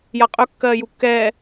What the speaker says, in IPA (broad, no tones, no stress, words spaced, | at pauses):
jaqʼɵ kːɜːjukːɛː